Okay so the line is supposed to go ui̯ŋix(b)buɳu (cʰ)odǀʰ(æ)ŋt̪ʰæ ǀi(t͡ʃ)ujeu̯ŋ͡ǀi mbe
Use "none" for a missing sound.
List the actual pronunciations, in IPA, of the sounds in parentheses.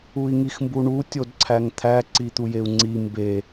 m, tʲ, æ, t̪

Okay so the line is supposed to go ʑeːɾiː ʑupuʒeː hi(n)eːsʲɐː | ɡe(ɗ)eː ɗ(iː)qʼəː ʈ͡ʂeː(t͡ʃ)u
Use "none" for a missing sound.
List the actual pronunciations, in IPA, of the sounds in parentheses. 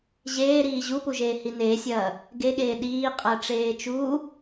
n, ɠ, iː, t͡ʃ

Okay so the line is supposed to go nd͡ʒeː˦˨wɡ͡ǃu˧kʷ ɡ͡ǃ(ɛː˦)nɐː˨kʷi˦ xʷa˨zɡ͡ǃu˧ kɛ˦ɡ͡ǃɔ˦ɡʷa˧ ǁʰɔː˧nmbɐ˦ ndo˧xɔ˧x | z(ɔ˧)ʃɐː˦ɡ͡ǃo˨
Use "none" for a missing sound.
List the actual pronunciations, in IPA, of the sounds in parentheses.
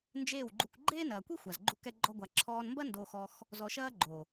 eː˦, ɔ˧

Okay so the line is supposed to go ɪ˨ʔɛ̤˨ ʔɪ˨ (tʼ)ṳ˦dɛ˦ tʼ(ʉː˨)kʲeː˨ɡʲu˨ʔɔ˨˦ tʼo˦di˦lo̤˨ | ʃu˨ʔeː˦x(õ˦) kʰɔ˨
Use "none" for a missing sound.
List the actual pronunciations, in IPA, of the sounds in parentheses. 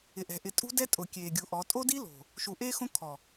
tʼ, ʊː˨, õ˦

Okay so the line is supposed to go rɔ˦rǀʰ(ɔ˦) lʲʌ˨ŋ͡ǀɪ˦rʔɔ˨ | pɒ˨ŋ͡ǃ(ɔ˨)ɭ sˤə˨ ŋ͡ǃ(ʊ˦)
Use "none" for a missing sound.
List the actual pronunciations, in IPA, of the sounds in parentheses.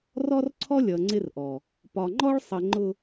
ɔ˦, ɔ˦, ʊ˨

